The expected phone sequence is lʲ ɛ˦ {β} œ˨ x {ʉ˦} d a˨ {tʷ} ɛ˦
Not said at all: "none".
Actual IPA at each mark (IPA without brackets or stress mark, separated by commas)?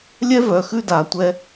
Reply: v, ʉ˦, tʷ